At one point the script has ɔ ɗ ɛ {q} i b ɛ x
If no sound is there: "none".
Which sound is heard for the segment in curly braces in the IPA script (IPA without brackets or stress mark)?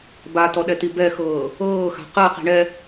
t